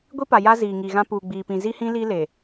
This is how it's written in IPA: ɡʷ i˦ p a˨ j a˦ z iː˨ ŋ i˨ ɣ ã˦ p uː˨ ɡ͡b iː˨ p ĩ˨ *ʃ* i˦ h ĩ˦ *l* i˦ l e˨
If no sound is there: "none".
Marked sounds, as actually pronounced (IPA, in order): z, l

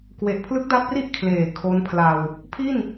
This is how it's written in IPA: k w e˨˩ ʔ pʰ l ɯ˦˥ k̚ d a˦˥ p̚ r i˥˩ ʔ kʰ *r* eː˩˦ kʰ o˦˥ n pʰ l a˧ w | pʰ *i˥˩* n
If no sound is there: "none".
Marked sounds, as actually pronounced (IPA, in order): l, i˥˩

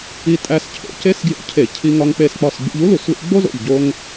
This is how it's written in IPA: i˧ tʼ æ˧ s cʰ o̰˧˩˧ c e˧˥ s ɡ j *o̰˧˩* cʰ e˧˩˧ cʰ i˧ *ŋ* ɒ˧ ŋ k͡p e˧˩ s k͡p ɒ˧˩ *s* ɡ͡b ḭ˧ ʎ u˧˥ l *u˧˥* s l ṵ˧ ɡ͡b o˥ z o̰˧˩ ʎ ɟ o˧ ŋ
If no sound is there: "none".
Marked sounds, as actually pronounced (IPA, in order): o̰˧˩, ŋ, s, u˧˩˧

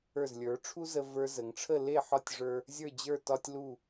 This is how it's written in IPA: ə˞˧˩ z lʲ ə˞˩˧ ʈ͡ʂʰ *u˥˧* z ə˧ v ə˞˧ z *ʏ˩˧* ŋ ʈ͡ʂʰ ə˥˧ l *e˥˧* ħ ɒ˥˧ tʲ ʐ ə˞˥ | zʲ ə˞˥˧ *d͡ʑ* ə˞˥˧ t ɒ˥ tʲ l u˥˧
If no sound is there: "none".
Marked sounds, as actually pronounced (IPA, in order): u˥, ə˩˧, e˥˧, d͡ʑ

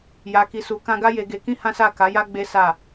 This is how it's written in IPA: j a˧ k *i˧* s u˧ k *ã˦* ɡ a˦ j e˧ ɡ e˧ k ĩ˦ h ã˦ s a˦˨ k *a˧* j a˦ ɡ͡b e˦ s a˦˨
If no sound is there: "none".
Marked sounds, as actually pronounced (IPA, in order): i˧, ã˦, a˨˦

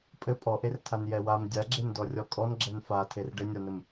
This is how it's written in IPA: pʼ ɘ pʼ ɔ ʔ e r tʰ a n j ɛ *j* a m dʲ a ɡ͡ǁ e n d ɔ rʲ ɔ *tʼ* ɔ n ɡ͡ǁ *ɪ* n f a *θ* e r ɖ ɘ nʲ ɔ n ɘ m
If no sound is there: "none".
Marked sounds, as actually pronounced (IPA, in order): w, kʼ, ɛ, tʰ

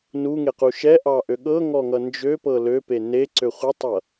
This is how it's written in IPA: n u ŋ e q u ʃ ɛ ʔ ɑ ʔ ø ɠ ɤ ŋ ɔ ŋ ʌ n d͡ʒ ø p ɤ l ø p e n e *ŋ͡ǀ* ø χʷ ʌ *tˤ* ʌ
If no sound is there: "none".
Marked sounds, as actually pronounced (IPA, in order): ǀ, tˤ

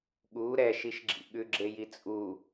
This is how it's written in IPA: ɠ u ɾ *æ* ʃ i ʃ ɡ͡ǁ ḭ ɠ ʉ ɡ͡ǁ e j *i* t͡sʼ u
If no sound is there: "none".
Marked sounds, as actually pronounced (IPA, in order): ɛ, i

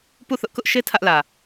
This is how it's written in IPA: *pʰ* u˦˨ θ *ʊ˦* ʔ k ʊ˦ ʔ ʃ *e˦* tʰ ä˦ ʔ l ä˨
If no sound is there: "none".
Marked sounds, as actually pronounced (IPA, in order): p, ʊ˦, e˦

